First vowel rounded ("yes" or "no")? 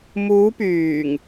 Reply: yes